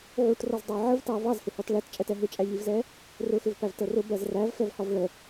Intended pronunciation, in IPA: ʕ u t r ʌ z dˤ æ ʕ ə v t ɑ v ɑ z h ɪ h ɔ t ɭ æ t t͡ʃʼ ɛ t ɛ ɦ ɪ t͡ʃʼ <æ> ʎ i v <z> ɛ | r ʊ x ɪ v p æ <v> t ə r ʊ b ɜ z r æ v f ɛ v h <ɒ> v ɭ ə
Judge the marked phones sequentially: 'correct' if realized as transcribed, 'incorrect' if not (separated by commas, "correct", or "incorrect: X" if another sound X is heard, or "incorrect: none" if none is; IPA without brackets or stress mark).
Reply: correct, correct, correct, correct